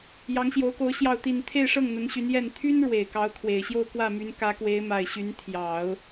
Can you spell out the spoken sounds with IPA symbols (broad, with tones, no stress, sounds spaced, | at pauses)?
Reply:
j ɑ˧˥ ŋ ɕ j o˧˥ ʊ̯ k o˧˥ ʊ̯ ɕ j ɑ˥˧ ʊ̯ t̪ i˥˧ n t̪ʰ e˥˧ ɪ̯ ʂ ɤ˥˩ ŋ n̪ ə˧˥ n ɕ y˧˥ n j ɛ˥˩ n t̪ʰ y˥ n ɻ w e˨˩ ɪ̯ k ɑ˧˥ ʊ̯ kʰ w e˨˩ ɪ̯ ɕ j o˥˧ ʊ̯ k w ä˥˩ m y˧˥ n k ä˧˥ k w e˧˥ ɪ̯ m a˨˩ ɪ̯ ɕ y˧˥ n t̪ʰ j ɑ˨˩˦ ʊ̯